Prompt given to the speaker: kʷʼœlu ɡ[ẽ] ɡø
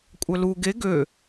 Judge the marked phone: incorrect: e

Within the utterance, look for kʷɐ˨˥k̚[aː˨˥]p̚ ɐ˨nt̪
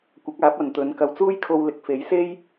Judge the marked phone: correct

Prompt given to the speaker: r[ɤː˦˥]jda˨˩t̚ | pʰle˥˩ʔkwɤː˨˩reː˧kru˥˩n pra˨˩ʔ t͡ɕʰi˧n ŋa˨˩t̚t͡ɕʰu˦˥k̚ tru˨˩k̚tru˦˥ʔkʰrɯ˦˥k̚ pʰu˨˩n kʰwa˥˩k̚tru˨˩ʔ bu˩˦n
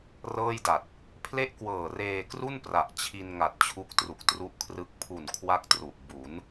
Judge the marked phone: incorrect: ɤː˥˩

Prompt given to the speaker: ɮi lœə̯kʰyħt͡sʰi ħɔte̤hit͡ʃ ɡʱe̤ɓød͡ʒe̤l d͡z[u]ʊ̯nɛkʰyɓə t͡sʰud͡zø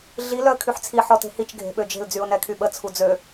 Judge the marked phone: incorrect: y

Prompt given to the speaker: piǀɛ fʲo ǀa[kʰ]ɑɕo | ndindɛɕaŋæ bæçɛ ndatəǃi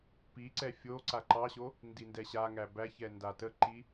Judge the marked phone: incorrect: ǃ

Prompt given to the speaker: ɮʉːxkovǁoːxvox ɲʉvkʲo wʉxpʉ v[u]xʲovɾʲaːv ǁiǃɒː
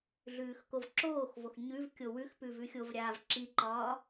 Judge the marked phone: incorrect: ʉ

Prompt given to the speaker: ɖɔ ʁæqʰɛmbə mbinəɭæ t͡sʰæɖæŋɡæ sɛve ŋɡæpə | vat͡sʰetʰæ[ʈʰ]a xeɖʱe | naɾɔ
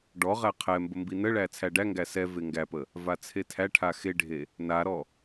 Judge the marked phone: correct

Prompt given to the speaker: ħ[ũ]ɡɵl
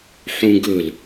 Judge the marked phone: correct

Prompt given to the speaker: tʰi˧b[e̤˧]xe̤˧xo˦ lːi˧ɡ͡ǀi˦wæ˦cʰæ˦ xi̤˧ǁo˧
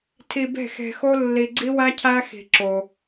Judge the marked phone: incorrect: e̤˦˨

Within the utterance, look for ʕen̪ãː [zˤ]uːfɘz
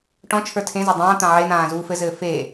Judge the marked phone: incorrect: z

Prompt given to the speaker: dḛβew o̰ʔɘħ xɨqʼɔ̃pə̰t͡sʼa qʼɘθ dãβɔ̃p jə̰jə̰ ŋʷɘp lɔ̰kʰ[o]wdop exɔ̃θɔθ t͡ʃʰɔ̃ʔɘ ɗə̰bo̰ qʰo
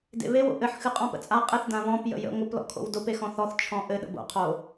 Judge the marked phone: incorrect: o̰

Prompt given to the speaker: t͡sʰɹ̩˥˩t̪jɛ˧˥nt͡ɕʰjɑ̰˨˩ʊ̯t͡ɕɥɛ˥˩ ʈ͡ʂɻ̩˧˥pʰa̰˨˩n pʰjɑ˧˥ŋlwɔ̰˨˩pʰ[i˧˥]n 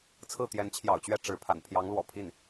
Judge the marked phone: incorrect: i˥˩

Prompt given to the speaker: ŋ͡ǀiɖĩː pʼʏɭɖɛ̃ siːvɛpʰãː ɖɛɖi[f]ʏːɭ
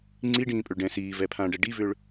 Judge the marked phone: incorrect: v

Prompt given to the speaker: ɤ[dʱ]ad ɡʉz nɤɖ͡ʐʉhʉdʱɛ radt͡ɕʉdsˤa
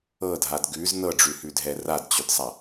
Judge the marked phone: correct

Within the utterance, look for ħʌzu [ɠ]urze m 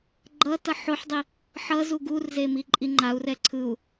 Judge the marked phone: incorrect: ɡ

